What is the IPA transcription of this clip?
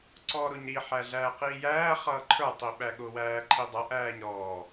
ǀ ɔː ɾ ʊ ɲ ɾ i ħ æ ɮ æː q iː j æː χ ʌː ǃʰ ə˞ tˤ i ɓ æ ɠ ʊ w æː ǃʰ i dˤ ʌ ʔ æː ɲ ɾ ɔː

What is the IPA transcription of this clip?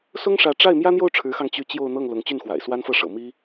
s ʊ˥ ŋ ʂ ä˧˥ ʈ͡ʂ a˥˩ ɪ̯ m j ä˥ n̪ j o˥˩ ʊ̯ ʈ͡ʂʰ ɻ̩˧˥ x ɑ˧ ŋ t͡ɕ y˥˧ t͡ɕ j o˥˧ ʊ̯ n̪ ɤ˥˩ ŋ l ʊ˧˥ ŋ t͡ɕ y˥˩ n x w a̰˨˩ ɪ̯ s w a˥ n f ɤ˥˩ ʂ ɤ̰˨˩ m i˥

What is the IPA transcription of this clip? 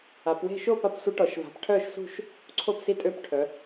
a˩˧ p w e̤˥˨ ʃ o˥˨ p a˩˧ p sʷ ə˧˥ ʈ ɔ˩˧ ʃ v a̤˩˧ p ʈʰ œ˥˨ ʃ s ṳ˥˨ ʃ | ǀʰ o˥˨ p s i˧˥ tʼ ø˧˥ p ʈʰ œ˩˧

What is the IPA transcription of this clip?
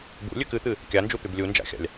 b ṵ lʲ ʉ k ɨ t̪ ɨ | kʲ a n d͡ʒ u t̪ ʉ b lʲ u n d͡ʒ a̰ xʲ a̰ lʲ

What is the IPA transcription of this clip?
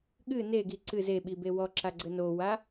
ɠ ɨ n e ɡ i ǀ ɨ z e ɓ i b e w ɔ ǁ a ɡ͡ǀ ɘ n o w a

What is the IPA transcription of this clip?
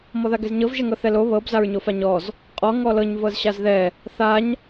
m ɔ ð a ɡ ɛ z ɲ ɤ v ʒ ɛ ŋ ɤ θ ɛ l o β ɤ b z a ɹ ɲ o f a ɲ ɔ z | qʼ ɔ ŋ ɔ l ɤ ɲ v ɤ z ɕ a z ð ɛ | θ a ɲ

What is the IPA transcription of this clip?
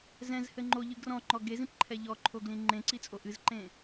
z ɛ̃ z h ɘ ŋ͡ǃ o ʎ ɨ ɡ r ɔ̃ ŋ͡ǃ ɔ ɡ e z ĩ p ǃʰ ɛ ʎ ɔ ǃʰ o ɡ l ĩ ŋ͡ǃ ẽ ǀ i t͡sʼ o ʔ ɨ z ǃ ẽ

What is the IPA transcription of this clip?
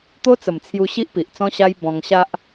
t̪ o˦ t͡s ə˨˩ m t͡sʰ j u˧ ɕ i˦ ʔ p i˨ ʔ t͡s ɔ̃˦ ɕ a˦ j b ɔ̃˧ ŋ ɕ a˦ ʔ

